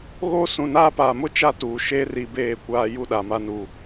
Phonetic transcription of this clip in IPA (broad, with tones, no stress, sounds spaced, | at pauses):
ɣ o˦ s ũ˨ n aː˦ p aː˨ m ʊ˦ t͡ʃ a˦ t uː˨ ʃ e˦ r i˨ b eː˦˨ kʷ aː˦ j u˦ ɗ a˨ m a˦ n u˨